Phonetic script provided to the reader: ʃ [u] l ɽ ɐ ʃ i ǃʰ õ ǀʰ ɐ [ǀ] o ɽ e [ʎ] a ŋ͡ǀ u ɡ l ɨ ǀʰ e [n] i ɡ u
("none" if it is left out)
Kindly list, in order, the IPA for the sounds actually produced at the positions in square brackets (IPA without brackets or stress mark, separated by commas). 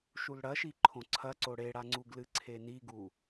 u, ǀ, ɽ, n